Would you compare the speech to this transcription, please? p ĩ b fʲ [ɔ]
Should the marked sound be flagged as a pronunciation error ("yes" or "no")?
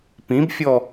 no